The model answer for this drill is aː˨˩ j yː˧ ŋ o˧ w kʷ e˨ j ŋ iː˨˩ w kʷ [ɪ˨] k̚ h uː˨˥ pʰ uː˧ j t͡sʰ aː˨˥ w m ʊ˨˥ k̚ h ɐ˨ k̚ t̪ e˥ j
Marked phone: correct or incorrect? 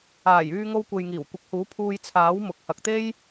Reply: incorrect